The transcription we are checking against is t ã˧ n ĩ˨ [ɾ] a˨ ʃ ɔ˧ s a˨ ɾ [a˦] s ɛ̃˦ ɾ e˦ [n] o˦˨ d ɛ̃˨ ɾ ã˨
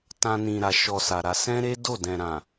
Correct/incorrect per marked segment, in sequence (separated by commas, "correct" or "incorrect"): correct, incorrect, incorrect